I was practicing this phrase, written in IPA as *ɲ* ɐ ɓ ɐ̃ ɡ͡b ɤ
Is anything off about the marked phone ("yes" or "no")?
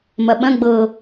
yes